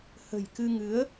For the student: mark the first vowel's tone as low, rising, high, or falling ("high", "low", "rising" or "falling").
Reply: low